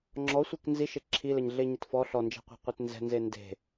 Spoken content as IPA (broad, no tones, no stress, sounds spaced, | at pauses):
ŋ͡ǁ ɔ sʷ e k n z i ʃ e ǁʰ i l ɛ ɲ ɮ e ɲ ɪ t f ɔ ɬ ɔ n d͡ʒ ɛ̤ qʷ ɛ̤ qʷ e t n z ɛ̤ n z e n d e̤